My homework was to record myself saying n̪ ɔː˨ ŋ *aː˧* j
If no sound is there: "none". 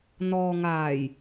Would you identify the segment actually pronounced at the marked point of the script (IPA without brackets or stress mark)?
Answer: aː˨˩